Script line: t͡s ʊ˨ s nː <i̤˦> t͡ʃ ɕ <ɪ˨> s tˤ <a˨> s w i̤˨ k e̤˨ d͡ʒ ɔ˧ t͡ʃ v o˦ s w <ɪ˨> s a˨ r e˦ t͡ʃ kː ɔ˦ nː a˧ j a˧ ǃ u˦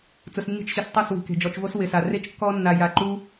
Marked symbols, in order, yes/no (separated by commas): no, yes, no, yes